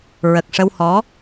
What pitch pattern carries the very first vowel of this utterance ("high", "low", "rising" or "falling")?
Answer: low